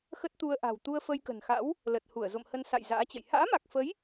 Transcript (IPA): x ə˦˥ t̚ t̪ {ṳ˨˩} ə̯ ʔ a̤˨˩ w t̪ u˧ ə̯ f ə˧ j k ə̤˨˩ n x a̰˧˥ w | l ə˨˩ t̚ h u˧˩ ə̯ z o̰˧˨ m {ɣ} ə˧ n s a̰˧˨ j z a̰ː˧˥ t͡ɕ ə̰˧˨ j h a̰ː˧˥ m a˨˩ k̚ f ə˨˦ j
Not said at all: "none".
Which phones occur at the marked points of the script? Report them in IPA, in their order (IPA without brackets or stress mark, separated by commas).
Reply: u˧, h